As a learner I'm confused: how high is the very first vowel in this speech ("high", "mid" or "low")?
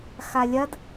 low